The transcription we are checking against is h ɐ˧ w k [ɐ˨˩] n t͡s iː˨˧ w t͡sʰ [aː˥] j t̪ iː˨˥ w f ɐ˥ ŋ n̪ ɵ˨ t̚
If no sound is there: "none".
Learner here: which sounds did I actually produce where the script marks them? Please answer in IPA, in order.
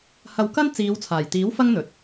ɐ˥, aː˨˩

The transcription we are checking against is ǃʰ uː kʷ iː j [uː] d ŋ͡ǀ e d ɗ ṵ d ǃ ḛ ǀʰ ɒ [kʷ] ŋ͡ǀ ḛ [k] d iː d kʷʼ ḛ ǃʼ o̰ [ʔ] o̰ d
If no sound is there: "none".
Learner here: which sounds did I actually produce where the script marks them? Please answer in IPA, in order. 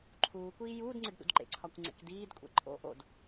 uː, kʷ, k, ʔ

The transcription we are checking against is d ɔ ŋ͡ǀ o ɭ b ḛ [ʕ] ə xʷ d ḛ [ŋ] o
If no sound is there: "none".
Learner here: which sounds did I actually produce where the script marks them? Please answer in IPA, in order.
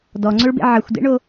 ʕ, ɳ

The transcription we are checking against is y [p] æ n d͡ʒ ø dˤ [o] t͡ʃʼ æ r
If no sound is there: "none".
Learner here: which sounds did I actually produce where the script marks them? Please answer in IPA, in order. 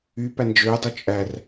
p, u

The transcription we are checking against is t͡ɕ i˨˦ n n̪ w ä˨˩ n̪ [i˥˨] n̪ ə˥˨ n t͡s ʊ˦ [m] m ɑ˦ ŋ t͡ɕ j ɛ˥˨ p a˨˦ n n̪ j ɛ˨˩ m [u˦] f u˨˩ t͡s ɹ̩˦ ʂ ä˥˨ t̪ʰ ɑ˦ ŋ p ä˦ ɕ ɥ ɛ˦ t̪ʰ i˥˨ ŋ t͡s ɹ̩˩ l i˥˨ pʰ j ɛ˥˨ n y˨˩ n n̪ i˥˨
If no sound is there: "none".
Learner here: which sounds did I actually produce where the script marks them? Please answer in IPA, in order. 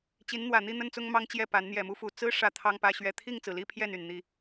i˥˨, ŋ, u˦

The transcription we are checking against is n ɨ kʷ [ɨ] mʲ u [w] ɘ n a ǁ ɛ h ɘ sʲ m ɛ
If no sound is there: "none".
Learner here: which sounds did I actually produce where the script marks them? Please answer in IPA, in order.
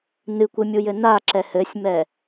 ɨ, j

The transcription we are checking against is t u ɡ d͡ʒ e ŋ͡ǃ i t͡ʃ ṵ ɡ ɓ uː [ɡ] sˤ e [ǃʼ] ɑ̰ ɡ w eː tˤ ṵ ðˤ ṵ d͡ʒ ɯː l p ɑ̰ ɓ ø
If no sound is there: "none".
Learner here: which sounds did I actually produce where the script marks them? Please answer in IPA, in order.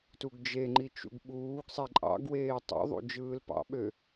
ɡ, ǃʼ

